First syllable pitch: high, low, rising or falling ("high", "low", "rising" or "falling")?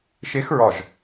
rising